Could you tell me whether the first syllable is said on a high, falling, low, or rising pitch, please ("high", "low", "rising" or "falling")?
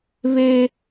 high